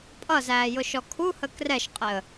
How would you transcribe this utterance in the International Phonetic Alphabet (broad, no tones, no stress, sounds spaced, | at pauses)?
pʼ ʌ z æː j ʊ ʃ ɔ kʰ u h ə k r ɛ ʃ qʼ ɪ ə̯